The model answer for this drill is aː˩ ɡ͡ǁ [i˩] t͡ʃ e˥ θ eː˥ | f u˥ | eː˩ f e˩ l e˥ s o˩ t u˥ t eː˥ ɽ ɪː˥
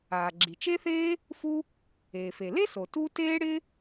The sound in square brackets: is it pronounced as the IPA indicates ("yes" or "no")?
yes